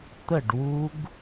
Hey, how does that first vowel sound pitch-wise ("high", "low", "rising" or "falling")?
falling